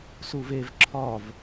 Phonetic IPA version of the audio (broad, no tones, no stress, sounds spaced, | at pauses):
s u v e v ǁʰ ɒ v